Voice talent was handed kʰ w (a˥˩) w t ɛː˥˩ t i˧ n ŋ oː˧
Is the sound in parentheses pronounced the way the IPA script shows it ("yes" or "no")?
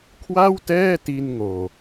yes